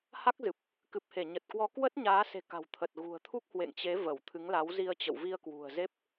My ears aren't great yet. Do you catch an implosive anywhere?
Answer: no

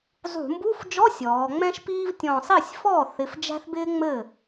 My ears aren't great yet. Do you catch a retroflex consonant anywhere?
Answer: no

